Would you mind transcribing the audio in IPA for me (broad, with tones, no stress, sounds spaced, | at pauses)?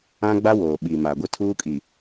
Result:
ã˦ ɡ͡b a˦ w oː˨ ɓ iː˨ m aː˨ ɡʷ ɪ˦ tʰ uː˦ kʼ i˨